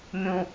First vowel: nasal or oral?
nasal